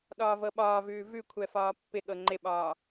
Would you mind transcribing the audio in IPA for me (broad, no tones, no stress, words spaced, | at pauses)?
ɗɒːvɤɓɒːvʉː vʉkʷʰɛ fɒːpːɪɠɤ ŋ͡ǃɪɓɒː